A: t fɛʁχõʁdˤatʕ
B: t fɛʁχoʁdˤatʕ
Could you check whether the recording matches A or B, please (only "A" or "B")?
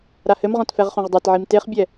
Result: A